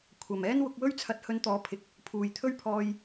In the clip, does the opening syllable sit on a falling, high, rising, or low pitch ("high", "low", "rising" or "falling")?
low